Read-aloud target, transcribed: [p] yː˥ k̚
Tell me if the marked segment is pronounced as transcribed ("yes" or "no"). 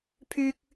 no